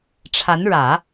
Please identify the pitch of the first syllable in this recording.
rising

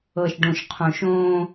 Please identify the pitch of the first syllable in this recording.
low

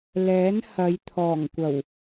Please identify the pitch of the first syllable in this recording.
rising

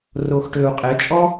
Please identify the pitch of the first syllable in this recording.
low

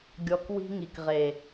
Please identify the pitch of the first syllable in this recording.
low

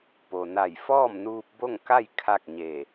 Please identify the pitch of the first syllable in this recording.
low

